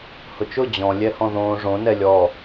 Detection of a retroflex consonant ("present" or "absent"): present